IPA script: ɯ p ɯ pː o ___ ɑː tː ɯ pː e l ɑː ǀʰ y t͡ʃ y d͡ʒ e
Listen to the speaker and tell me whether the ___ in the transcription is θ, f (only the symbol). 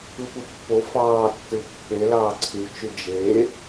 f